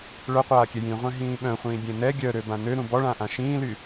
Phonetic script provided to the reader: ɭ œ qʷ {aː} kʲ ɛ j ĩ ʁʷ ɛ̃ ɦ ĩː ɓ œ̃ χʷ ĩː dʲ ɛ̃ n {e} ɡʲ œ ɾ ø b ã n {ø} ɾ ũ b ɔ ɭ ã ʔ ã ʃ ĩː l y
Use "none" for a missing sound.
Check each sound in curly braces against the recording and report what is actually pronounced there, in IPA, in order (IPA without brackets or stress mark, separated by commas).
aː, ɛ, ø